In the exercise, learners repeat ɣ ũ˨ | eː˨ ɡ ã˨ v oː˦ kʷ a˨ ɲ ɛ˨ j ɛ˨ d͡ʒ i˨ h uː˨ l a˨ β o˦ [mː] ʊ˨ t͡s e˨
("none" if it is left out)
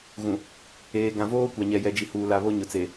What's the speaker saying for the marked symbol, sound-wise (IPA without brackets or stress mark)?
ɲ